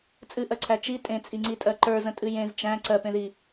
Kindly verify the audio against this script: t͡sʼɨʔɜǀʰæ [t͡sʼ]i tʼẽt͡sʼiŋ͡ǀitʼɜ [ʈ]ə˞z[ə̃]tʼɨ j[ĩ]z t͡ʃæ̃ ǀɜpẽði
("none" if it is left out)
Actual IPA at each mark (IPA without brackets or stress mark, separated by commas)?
t͡ʃ, ǃ, ə̃, ẽ